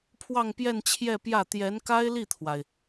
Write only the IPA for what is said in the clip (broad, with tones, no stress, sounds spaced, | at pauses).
pʰ w ɑ˥˧ ŋ p j ɛ˥˧ n t͡ɕʰ j ɛ˥˧ p j ä˥˩ t̪ j ɛ˧˥ n k a˥ ɪ̯ l i˥˩ t̪ʰ w a˩ ɪ̯